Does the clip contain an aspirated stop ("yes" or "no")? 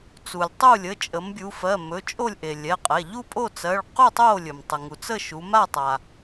no